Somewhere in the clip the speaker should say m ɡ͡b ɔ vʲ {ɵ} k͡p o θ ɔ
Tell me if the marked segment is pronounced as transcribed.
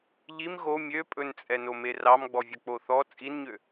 yes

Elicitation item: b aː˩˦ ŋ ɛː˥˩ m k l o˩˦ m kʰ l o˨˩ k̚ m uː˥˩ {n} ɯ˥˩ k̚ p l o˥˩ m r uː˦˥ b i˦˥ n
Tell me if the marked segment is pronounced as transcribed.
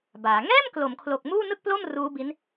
yes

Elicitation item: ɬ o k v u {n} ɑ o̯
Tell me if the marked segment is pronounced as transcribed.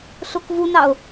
yes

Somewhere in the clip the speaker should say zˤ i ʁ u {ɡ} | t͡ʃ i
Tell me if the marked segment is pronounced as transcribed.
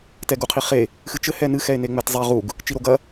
yes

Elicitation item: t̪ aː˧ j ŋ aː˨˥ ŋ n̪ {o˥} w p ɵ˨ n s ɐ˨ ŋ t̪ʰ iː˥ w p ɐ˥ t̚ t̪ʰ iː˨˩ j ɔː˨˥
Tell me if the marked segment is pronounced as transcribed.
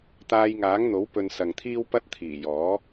no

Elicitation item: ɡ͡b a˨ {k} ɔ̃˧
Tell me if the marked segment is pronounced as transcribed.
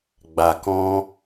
yes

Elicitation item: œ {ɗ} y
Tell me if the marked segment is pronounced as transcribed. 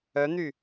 no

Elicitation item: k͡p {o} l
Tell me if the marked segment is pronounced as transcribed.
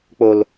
yes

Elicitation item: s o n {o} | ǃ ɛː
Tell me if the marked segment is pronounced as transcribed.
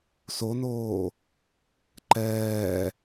no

